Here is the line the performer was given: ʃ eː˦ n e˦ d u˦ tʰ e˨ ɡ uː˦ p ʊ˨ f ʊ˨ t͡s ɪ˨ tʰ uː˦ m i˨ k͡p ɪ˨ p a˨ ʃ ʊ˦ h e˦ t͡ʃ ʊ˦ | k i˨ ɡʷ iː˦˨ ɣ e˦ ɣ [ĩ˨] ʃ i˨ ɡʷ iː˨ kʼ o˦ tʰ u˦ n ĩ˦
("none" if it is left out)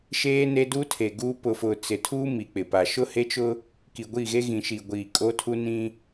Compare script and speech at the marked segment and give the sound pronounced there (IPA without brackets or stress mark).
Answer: ĩ˨